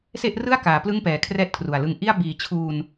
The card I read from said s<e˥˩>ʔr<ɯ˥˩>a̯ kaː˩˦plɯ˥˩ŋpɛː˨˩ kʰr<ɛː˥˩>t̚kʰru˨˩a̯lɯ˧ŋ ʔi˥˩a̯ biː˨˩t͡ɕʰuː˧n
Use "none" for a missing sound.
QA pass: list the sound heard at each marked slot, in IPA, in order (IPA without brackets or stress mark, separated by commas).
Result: e˥˩, ɯ˥˩, ɛː˥˩